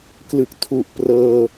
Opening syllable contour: low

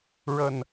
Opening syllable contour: low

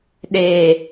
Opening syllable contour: low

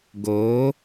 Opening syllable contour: rising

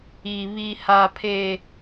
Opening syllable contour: low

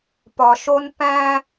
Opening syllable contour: low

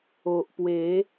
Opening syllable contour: low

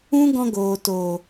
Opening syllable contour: high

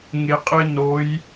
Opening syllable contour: low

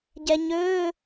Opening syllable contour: low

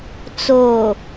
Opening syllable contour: low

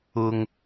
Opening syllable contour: high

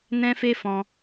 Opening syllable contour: high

